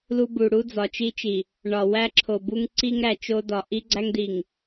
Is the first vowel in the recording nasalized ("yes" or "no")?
no